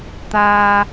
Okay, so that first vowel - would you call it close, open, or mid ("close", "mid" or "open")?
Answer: open